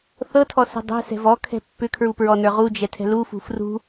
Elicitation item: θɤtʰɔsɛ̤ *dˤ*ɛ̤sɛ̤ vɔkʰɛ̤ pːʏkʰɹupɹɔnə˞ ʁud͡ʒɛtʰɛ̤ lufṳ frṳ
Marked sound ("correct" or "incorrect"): correct